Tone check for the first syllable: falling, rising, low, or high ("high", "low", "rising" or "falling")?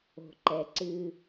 low